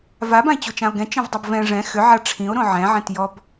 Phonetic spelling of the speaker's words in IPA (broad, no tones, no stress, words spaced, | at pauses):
vabãe̯t͡ɕot͡ʃão̯ ɡɛ̃t͡ʃẽvdˤob vɛ̃ ʐɛ̃ xʏʕa ʈ͡ʂʰĩo̯ɾõ ʕɛ̃ʕɛ̃t jɔb